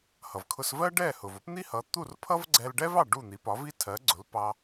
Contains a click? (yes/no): yes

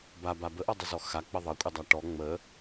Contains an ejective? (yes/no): yes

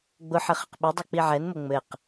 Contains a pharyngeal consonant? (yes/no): yes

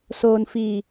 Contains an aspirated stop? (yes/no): no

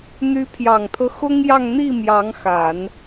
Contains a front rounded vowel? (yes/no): yes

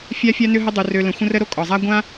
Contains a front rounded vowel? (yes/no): yes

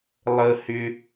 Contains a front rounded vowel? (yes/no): yes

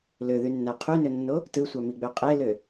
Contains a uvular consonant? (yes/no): yes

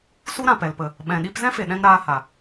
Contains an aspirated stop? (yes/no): no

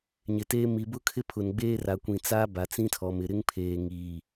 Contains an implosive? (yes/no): no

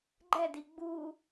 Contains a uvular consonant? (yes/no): no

